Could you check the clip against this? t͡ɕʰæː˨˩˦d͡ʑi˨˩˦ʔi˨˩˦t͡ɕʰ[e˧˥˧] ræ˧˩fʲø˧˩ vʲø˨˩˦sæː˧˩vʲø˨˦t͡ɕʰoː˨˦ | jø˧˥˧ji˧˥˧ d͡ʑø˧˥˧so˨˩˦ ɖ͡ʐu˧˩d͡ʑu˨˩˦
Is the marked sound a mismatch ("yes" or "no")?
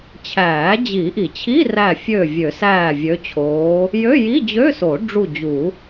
yes